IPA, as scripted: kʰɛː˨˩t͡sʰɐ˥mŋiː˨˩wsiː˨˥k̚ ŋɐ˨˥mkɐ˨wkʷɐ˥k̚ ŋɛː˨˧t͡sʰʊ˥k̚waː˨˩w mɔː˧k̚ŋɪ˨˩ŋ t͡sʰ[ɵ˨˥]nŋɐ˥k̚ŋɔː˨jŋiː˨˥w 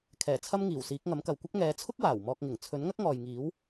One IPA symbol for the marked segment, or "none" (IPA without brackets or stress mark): ɵ˨˥